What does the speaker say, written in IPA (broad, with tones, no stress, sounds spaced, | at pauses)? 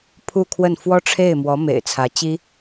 pʰ u˥˧ kʰ w ə˥˩ n f w ɔ˥ ʈ͡ʂʰ e˥˩ ɪ̯ m w ɔ˧˥ m ḛ˨˩ ɪ̯ t͡sʰ ä˧˥ t͡ɕ i˥